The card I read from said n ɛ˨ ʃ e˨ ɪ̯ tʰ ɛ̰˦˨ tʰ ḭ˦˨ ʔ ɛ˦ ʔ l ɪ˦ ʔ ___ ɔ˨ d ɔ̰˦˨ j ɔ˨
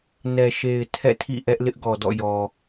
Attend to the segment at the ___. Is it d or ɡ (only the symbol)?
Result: ɡ